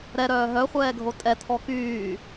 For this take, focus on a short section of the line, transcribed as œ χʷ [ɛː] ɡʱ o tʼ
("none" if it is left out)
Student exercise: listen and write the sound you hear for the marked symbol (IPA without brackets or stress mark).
ɛː